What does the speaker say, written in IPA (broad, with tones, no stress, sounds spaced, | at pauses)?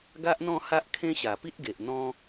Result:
ɡ a˦ ʔ n̪ ɔ̃˥˧ h a˦ ʔ kʰ ẽ˦ ɕ a˨˩ p i˦ t̚ ɡ e˨ ʔ n̪ ɔ̃˦